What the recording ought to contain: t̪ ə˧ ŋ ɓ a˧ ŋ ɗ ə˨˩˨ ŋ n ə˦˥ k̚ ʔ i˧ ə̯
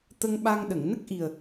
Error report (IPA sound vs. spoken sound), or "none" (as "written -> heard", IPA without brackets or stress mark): i˧ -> i˨˩